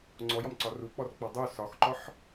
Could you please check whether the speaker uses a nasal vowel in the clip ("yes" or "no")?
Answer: no